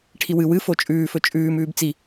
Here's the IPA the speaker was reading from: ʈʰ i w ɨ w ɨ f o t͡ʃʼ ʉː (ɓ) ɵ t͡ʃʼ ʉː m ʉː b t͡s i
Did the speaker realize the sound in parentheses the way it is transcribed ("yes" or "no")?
no